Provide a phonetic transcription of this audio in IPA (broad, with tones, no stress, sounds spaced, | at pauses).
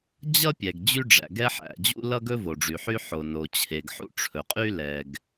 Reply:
d͡ʑ ʌ˥ pʲ ɛ˩ ɡ d͡ʑ y˥ ɖ͡ʐ æ̰˩ ɡ ɛ˥ ħ æ̰˩ d͡ʑ ṵ˥ l ʌ˥ ɡ ɵ˥ v o˩ ɖ͡ʐ y˩ ħ y˥ ħ o˩ n o˩ t͡ɕʰ e˩ ɡ ħ ṵ˥ ʈ͡ʂʰ ɵ˩ qʼ y˥ l ɛ˩ ɡ